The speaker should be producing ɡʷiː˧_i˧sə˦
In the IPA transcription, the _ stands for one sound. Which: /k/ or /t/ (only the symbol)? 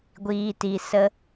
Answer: t